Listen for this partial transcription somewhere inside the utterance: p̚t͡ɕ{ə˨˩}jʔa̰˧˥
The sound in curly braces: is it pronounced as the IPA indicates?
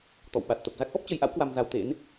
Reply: no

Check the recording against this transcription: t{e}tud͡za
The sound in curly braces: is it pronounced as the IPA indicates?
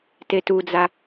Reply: yes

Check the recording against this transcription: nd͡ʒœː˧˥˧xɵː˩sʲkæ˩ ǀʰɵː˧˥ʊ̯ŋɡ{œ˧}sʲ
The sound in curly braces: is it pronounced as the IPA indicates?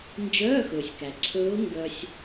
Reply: yes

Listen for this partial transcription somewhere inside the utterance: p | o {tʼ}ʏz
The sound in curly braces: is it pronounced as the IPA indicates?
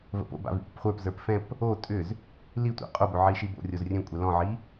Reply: yes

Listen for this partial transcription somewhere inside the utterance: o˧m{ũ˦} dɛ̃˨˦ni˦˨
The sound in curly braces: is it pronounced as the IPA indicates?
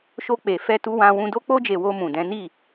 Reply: no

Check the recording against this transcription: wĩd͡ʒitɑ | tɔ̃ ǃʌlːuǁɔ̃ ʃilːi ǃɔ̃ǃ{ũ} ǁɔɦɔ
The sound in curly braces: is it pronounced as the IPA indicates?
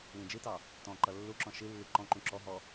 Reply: yes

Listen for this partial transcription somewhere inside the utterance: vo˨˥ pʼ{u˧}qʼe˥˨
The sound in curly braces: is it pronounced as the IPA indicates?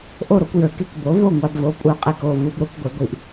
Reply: yes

